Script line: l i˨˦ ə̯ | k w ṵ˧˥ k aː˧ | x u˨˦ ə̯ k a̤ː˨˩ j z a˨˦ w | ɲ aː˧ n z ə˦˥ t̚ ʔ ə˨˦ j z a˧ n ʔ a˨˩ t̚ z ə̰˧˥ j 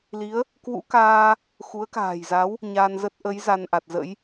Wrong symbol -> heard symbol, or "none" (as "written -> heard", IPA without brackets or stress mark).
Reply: none